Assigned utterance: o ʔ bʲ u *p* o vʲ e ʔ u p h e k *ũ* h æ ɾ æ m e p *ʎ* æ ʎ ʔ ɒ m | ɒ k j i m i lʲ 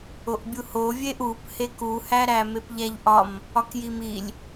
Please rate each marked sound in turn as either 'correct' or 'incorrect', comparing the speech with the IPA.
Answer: incorrect: h, incorrect: u, correct

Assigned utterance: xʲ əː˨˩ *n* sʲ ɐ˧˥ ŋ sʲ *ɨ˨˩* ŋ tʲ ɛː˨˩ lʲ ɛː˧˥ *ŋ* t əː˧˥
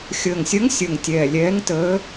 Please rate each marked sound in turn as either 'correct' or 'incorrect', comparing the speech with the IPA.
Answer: incorrect: ŋ, incorrect: ə˨˩, correct

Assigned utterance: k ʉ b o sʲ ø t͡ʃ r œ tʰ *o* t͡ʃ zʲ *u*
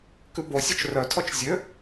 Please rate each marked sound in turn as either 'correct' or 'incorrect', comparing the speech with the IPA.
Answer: incorrect: ɔ, incorrect: ø

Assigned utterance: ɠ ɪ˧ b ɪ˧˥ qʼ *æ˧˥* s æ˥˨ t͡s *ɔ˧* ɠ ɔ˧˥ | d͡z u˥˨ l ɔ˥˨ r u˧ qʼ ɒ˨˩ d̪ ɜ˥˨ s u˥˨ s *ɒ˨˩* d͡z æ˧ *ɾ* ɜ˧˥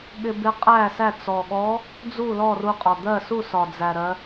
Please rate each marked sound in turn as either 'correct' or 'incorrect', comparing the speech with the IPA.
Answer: incorrect: æ˥˨, incorrect: ɔ˨˩, correct, correct

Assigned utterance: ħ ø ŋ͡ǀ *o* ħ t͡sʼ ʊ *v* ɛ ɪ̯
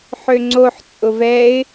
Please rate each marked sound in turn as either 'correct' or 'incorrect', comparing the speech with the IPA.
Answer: correct, correct

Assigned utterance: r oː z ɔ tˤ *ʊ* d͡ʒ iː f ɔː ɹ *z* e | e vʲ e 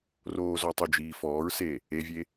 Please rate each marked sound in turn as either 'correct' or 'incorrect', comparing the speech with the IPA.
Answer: correct, incorrect: s

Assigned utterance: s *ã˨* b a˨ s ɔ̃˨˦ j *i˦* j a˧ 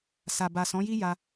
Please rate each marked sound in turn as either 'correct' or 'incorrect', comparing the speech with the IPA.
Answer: incorrect: a˨, correct

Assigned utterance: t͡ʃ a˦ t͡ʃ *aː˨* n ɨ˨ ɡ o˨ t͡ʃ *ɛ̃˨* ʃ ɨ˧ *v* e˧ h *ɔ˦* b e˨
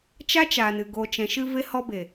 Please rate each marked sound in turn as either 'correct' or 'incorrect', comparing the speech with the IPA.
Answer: correct, correct, correct, incorrect: ɔ˧

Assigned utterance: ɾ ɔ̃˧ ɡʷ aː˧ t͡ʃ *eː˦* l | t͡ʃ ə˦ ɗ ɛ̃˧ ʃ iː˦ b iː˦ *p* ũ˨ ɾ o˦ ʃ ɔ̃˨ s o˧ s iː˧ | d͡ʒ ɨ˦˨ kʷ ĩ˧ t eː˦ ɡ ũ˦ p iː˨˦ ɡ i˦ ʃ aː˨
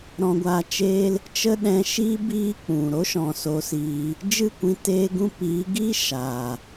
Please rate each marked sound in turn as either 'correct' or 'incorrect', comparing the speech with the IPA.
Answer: correct, incorrect: k͡p

